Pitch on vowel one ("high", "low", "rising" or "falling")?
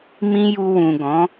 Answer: high